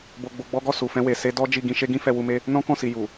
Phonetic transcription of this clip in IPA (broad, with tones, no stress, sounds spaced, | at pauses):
b o˧ ɡ͡b o˧ ɡ͡b ɔ˦ ɡ ɔ˦˨ s u˨ f ɛ̃˧ w e˨ s e˧ d ɔ˦ d͡ʒ i˦˨ ɡ ĩ˧ ʃ e˦ ɡ ĩ˦ f ɛ˧ w u˧ m e˦ | n ɔ̃˦ k ɔ̃˦˨ s i˨ j u˨